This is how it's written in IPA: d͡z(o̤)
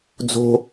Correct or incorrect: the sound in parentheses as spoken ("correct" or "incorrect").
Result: correct